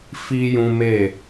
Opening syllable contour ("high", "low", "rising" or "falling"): high